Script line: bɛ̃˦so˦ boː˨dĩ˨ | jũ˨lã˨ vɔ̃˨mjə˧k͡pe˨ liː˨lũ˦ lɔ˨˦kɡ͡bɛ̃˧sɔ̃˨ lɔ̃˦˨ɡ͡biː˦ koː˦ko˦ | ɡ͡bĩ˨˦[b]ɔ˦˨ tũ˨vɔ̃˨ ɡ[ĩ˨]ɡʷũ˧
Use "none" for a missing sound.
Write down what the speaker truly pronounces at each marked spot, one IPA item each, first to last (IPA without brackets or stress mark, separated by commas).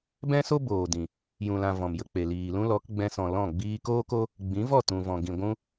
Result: v, ĩ˨